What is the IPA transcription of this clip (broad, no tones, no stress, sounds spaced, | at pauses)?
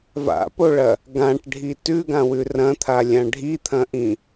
v a̰ p o ɭ ɐ | ɡ ã ʈ ɖʱ i t ʉ ɡ ã w ʉ r ɐ̃ t̪ʰ a lʲ ã ɖʱ i t̪ʰ ɐ̃ ʔ ĩ